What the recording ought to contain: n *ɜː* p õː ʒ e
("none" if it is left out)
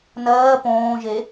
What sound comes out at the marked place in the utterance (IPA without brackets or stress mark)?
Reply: ɜː